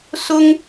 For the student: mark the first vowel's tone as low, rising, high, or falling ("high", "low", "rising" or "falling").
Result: high